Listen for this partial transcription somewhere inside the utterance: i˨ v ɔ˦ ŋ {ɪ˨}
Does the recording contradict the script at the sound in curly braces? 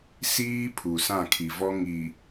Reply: yes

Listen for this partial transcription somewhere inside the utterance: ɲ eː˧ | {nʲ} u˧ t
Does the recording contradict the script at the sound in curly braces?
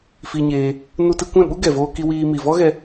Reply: yes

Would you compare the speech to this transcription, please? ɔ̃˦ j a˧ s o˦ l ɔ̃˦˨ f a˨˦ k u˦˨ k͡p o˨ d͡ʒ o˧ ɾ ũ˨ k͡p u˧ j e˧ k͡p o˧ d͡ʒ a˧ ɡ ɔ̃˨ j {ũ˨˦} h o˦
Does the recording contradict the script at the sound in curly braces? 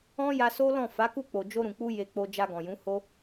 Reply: no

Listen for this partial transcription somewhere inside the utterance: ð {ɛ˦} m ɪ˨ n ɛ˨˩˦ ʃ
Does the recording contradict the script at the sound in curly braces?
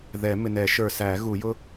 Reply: yes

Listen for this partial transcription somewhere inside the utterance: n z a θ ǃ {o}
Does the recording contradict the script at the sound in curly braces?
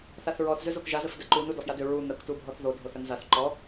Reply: yes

